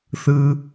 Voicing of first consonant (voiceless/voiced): voiceless